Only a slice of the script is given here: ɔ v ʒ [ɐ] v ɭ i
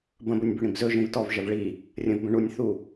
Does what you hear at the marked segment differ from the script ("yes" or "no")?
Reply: no